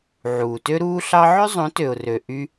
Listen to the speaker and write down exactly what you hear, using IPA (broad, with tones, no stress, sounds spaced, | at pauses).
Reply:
ʕ uː˨ t ø˦ ɾ uː˦ ɬ ɑ˦ ʕ ø˦ zˤ õ˨˦ t ø˨ ʊ̯ r ø˨ ʔ y˧